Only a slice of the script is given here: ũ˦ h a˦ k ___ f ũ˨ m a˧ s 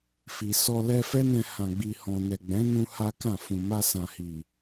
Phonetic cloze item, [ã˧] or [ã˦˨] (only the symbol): ã˦˨